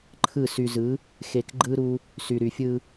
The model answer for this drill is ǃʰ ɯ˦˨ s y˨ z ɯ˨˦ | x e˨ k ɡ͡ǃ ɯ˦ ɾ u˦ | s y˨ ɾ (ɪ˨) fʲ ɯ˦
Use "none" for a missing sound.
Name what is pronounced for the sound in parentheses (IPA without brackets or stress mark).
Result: y˨